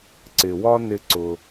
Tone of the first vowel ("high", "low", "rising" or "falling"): low